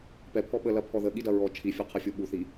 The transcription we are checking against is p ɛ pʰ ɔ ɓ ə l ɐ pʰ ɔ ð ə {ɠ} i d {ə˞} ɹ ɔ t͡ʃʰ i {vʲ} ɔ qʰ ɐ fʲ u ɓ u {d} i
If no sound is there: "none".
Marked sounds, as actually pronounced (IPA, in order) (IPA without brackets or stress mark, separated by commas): ɠ, ɐ, fʲ, θ